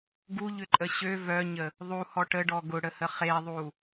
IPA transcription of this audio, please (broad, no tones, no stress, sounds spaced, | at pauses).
ɡ u ʎ ʏ ǃʼ ə ɕ ø v œ ɲ ə | ðˤ u h ɔ ʈ ə ɖ ɔ ɡ ʊ ɽ ə h ə χ e ðˤ u